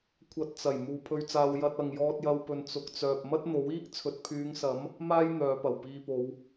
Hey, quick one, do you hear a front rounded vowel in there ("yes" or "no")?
yes